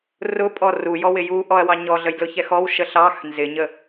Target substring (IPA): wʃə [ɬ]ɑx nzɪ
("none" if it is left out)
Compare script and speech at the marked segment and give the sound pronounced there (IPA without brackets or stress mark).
ɬ